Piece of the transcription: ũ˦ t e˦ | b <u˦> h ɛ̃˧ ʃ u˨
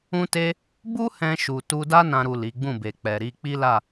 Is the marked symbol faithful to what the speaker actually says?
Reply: yes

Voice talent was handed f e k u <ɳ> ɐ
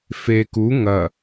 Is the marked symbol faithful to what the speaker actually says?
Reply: no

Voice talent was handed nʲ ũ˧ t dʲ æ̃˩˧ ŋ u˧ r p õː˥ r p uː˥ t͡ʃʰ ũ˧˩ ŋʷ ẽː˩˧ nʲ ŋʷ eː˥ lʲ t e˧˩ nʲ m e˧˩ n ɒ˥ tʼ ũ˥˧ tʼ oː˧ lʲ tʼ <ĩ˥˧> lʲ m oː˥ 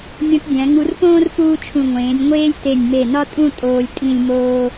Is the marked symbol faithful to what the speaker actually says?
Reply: yes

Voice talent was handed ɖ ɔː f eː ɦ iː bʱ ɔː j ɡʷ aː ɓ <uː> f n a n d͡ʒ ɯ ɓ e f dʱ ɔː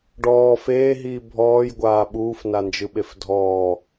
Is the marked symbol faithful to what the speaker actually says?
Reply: yes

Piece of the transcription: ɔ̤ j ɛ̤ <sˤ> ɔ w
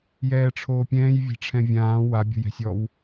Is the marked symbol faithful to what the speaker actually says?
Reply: no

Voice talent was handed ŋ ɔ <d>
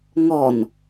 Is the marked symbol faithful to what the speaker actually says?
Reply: no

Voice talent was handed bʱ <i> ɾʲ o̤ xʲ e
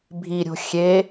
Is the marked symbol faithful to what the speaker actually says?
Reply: yes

